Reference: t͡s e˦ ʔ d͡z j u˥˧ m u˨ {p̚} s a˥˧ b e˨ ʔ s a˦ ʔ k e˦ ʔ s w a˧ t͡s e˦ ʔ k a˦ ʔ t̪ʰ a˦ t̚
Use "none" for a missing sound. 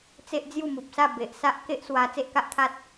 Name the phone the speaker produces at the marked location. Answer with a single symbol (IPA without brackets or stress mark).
p̚